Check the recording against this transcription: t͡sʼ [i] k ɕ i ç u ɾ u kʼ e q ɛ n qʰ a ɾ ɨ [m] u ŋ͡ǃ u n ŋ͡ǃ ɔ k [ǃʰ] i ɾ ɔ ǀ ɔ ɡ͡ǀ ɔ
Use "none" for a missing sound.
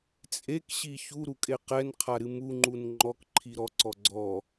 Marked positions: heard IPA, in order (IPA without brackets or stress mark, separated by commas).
e, m, ǃʰ